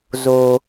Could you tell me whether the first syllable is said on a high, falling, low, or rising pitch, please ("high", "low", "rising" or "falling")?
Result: high